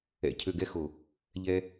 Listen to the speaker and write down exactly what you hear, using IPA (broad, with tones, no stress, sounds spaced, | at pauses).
ɛ̰˨ cʰ ø˨ ɡ ɛ˧ x o˨ | ʎ ɛ˧